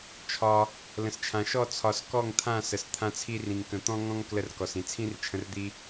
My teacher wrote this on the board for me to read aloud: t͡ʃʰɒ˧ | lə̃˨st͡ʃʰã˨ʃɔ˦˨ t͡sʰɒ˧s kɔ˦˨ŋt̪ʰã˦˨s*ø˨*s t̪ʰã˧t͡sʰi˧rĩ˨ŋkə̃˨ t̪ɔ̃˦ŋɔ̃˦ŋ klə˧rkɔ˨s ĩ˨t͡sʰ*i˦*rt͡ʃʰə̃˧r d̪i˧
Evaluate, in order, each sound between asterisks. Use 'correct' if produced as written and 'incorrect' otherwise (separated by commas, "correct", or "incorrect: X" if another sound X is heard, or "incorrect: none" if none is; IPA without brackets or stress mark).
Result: incorrect: ə˨, incorrect: ĩ˦